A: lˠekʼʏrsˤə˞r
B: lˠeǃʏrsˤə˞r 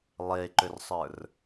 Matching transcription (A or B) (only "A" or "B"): B